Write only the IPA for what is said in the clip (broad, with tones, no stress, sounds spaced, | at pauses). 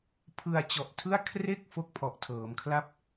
pʰ ɯ˧ a̯ t͡ɕ ɔ˨˩ ʔ tʰ ɯ˥˩ a̯ kʰ r e˥˩ k̚ f o˥˩ k̚ pʰ ɔ˨˩ ʔ tʰ ɤː˩˦ m kʰ l a˥˩ p̚